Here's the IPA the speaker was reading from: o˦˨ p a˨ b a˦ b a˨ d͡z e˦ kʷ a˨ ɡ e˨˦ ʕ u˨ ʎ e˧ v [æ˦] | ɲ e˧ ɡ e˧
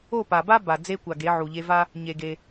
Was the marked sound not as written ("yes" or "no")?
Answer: yes